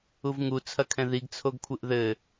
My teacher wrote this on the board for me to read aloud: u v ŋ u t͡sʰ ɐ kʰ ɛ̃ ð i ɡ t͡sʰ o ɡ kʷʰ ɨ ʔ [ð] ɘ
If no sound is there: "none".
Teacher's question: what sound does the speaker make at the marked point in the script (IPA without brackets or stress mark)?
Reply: ð